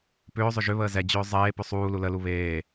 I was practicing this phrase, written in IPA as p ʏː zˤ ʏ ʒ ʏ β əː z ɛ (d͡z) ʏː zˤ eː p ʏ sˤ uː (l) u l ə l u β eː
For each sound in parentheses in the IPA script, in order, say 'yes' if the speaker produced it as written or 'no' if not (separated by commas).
no, yes